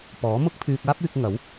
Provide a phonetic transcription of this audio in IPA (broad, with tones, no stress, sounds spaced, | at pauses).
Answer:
p ɔː˨˥ m ʊ˥ k̚ pʰ yː˧ k̚ aː˥ p̚ yː˧ k̚ ŋ ɐ˨˥ w